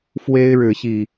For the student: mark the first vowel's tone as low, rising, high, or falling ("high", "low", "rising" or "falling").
high